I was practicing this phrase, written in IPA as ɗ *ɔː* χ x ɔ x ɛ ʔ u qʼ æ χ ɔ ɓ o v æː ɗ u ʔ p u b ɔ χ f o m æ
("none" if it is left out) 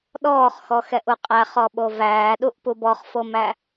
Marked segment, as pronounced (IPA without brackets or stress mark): ɔː